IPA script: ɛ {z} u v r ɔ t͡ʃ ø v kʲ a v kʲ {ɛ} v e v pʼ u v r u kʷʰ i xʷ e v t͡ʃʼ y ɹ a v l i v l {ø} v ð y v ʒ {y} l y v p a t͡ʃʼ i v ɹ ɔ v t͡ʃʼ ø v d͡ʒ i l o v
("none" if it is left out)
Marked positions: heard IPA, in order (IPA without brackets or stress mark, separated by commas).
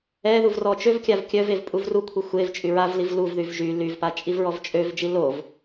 ð, œ, u, y